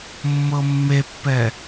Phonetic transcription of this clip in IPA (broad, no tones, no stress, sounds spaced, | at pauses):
mː ɤ mː e pː ɛ